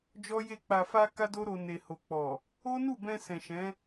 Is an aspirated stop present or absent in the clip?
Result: absent